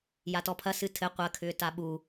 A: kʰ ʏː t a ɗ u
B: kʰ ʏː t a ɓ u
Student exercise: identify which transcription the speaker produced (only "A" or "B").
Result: B